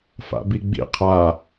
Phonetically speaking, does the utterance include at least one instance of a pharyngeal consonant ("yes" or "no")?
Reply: no